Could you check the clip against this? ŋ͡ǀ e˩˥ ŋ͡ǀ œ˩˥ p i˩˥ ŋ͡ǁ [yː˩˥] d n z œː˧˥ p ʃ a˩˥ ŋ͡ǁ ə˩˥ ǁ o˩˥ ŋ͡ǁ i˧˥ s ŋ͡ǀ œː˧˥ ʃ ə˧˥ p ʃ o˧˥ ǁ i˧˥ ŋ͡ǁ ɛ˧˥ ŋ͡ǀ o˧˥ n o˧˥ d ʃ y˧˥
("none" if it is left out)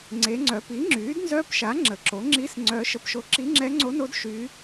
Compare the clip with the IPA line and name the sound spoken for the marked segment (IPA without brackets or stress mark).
yː˩˥